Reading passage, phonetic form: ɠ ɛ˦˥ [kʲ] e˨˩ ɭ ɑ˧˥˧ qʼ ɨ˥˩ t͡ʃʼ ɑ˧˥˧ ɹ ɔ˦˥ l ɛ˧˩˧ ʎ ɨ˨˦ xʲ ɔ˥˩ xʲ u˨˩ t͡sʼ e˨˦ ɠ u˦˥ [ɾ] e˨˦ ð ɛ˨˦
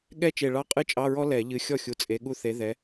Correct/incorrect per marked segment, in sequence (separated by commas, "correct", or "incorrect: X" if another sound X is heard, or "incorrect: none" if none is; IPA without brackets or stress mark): incorrect: t͡ʃ, incorrect: θ